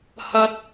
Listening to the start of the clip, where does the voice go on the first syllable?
high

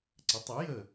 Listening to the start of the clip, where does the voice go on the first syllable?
rising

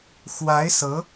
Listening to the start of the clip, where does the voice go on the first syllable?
rising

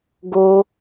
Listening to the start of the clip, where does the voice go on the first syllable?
high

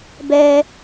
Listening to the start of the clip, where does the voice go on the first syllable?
high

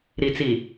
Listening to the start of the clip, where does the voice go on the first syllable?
low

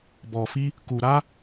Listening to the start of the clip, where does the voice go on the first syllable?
low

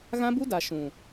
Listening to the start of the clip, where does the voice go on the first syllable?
high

